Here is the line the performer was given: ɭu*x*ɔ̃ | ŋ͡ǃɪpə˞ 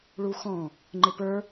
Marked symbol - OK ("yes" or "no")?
yes